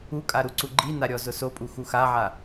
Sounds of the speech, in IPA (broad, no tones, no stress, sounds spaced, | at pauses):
u kʼ a ɾ u ǀ u ɡ͡ǃ i n a ɾʲ ɔ z ʊ s o pʼ u x u x a ʕ a